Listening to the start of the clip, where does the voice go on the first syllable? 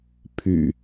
low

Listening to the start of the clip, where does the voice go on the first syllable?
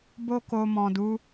high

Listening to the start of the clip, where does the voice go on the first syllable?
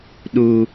high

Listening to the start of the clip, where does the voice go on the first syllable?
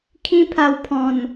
high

